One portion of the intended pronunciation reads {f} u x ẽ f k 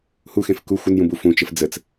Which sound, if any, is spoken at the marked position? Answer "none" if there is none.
h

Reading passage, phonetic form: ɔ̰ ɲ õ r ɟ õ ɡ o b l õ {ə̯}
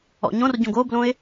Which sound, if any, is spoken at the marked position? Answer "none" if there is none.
ɪ̯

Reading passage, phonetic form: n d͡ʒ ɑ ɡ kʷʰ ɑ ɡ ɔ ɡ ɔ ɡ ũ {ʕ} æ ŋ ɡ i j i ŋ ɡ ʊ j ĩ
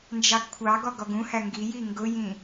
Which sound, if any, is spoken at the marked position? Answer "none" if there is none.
h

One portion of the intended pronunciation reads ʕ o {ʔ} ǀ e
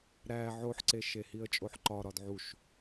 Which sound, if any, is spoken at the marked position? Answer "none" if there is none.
ħ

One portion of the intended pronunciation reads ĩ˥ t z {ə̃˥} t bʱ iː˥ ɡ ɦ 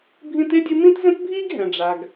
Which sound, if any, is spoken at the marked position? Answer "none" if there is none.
ə̃˥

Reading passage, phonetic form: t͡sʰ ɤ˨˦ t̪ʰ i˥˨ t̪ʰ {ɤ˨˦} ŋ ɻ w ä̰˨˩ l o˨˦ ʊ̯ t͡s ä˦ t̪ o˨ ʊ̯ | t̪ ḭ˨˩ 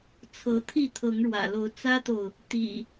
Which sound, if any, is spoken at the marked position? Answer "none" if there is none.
ɤ˨˦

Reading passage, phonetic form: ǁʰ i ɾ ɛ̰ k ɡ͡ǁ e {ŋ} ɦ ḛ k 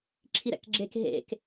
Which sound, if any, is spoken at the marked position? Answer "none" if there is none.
k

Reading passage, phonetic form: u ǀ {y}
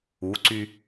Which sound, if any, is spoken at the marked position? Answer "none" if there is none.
y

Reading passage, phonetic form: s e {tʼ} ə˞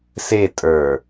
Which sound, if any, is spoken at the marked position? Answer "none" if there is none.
tʼ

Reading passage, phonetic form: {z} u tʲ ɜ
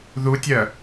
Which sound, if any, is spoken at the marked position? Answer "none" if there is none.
ð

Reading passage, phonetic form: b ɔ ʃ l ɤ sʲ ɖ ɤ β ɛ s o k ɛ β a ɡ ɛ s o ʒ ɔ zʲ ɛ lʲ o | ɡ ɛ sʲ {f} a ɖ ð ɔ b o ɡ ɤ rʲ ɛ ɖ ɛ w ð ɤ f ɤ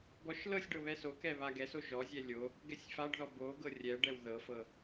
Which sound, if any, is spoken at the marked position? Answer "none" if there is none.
f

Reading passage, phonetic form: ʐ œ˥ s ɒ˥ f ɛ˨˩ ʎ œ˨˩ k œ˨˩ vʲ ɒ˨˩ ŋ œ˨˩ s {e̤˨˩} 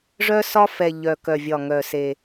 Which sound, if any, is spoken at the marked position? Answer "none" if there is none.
e˨˩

